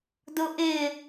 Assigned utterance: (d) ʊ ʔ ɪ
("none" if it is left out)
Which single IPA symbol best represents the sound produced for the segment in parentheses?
d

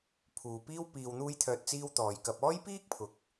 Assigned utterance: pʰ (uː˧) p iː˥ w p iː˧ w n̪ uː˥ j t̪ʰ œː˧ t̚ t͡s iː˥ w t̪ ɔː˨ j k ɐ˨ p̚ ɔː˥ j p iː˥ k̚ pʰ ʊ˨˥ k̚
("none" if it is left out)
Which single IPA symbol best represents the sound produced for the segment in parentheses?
uː˨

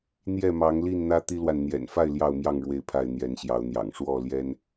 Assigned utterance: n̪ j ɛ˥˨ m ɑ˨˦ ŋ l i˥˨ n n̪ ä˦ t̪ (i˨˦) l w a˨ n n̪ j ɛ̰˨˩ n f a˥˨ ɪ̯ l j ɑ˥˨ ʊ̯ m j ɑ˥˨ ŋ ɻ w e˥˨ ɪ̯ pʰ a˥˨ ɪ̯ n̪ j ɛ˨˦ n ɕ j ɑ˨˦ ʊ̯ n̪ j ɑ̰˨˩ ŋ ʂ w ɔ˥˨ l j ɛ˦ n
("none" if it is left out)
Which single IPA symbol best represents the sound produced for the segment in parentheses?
i˦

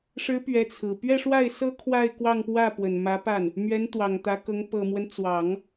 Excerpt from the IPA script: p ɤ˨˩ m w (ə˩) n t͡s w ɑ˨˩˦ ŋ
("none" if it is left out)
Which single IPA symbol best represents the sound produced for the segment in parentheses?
ə˦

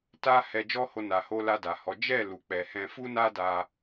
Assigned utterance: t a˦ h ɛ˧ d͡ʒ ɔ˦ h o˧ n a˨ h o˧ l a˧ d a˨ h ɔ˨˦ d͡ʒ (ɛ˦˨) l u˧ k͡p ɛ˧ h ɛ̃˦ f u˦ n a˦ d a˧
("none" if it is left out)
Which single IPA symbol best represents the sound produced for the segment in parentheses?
ɛ˦˨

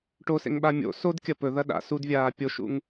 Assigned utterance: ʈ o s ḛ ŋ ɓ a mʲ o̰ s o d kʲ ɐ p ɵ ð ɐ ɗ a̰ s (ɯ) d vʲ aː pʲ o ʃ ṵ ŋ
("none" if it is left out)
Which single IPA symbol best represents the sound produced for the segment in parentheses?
u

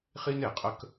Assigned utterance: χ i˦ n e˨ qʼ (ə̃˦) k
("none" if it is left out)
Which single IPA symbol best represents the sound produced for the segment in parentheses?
ə˦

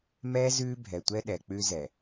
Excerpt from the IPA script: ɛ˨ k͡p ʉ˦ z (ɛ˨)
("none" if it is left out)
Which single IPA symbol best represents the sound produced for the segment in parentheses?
ɛ˨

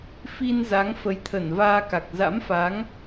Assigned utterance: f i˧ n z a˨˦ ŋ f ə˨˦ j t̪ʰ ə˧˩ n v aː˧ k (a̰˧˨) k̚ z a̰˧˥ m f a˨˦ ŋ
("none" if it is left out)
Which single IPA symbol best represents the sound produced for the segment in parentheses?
a˨˩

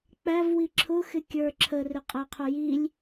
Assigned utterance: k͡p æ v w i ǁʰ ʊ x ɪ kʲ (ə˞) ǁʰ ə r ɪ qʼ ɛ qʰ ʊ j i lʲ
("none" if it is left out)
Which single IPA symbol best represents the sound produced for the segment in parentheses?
ə˞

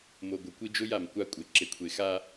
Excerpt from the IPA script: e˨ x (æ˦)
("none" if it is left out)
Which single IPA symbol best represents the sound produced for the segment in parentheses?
a˦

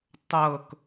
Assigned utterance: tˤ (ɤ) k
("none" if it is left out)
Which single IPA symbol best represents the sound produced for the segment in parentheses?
ɤ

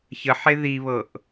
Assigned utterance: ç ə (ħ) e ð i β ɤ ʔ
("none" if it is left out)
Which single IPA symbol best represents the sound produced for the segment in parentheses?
ħ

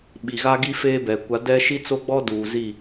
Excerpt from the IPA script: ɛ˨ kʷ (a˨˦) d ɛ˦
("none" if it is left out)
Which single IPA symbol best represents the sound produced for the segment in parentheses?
a˨˦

